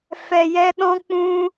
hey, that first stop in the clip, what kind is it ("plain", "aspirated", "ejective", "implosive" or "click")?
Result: implosive